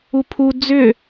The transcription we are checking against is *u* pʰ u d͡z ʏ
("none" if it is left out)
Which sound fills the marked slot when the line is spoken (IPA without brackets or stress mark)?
u